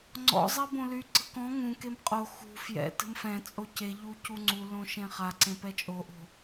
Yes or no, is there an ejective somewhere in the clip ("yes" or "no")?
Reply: yes